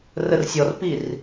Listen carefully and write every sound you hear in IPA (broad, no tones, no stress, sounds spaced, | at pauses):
r ə r sʲ ɔ r p i r